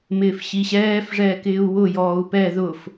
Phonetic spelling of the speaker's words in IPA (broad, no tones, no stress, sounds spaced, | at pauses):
m ɪː f ɕ i ɕ ɛː f ʐ ɛː k ɪː u̯ w ʊ j ɔː u̯ p ɛ ð ʊ f